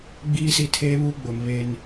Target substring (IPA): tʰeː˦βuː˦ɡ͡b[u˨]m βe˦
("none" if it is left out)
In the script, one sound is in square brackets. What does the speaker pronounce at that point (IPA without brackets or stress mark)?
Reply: o˨